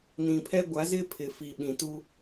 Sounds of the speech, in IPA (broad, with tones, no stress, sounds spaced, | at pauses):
n ĩ˨ pʰ ɛ˦ ɡʷ a˨˦ z ɪ˦ pʰ ɪ˨ f i˨ ɓ ĩ˨ t u˦